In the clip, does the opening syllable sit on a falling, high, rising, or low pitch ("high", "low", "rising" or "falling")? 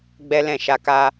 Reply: high